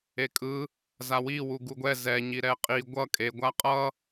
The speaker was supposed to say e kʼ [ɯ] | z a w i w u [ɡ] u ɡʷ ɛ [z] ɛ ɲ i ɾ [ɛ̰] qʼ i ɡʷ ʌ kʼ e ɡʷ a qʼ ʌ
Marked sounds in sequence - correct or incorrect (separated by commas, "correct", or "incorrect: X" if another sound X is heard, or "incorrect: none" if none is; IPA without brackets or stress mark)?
correct, correct, correct, incorrect: ɛ